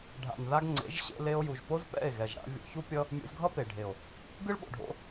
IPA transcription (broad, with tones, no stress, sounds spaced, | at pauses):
ɖʱ a̰˨ n ð a˧ ɡ ŋ͡ǀ ḛ˨˦ ʒ ɕ ḛ˧ l e˧ o̯ j u˨ ʒ p o˦ z p ɛ̰˦˨ e̯ ɣ ɛ˨ ʒ ɽ a̰˧ vʲ o̰˧ ç u˦ pʲ ʌ˦ | mʲ ṵ˧ z ɡʱ ʌ˦ p e˨ ɖʱ e˨ o̯ | ɡ ɯ˦ ɭ ɓ o̰˨ ɖʱ o̰˧